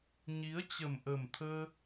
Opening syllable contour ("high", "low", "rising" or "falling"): rising